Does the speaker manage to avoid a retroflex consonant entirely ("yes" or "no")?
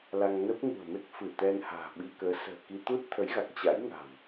yes